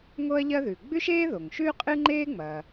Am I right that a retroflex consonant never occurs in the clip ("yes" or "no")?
yes